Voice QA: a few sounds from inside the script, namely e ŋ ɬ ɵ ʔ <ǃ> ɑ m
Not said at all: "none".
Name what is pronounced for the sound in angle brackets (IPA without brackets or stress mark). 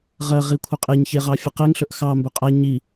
x